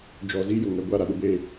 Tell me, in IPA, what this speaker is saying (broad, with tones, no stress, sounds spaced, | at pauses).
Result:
d͡ʒ ɔ˨ z i˦ j ʊ˨ ŋ ɛ˨ ɡʷ a˦˨ ɾ a˨ ɗ ʊ˦ b eː˦